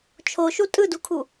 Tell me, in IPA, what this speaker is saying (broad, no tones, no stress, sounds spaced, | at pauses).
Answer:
t͡ʃʰ o ʃ u tʼ ɯ d u kʰ u